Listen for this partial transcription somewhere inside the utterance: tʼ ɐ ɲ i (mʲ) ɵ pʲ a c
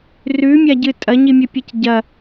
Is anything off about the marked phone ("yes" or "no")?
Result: no